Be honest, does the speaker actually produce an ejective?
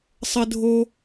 no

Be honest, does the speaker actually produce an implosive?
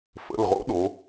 yes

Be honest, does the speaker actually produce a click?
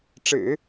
no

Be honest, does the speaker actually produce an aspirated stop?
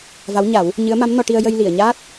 no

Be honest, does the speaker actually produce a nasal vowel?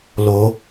no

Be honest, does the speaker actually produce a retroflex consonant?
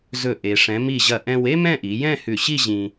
yes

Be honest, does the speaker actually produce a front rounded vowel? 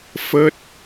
no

